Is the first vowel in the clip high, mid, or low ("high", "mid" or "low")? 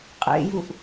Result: mid